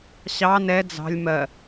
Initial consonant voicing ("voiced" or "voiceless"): voiceless